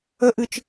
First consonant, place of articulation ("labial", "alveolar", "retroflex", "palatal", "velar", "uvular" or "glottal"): glottal